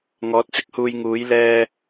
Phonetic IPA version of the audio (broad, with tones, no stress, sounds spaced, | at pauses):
ŋ ɔː˨˥ t̚ t͡s ɪ˥ k̚ h uː˧ j ŋ uː˨˥ j l ɛː˧